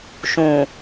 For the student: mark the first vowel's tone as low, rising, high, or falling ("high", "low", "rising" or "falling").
low